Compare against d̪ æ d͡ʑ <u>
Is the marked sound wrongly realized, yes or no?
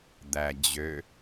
yes